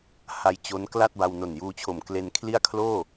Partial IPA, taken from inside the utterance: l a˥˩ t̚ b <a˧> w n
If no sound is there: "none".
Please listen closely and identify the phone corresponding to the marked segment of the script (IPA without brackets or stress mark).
a˧